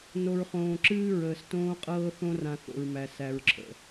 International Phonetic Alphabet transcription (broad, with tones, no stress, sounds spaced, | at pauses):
n o˨ ɹ χ õː˨ ǁ ɨː˦ ɹ əː˨ s t õː˦ qʼ ɤː˦ θ õ˦ r ã˨ θ o̰˨ ɹ m æ˨ s æ˨ ɹ ǁʰ ə̰˨